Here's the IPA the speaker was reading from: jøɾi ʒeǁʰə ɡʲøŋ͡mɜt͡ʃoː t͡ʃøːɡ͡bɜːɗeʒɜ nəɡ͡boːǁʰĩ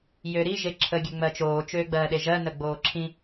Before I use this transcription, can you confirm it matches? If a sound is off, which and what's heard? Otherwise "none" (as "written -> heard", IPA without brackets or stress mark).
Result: none